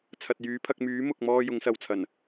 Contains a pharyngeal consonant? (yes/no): no